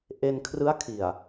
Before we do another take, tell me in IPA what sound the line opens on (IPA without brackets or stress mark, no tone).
ʔ